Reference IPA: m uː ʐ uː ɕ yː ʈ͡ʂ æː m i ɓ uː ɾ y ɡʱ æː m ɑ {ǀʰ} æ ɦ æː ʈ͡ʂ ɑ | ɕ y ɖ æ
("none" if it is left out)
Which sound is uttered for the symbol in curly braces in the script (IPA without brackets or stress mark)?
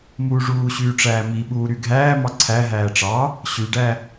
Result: ǀʰ